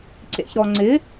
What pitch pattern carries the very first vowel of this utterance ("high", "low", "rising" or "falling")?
low